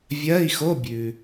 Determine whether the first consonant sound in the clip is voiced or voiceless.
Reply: voiced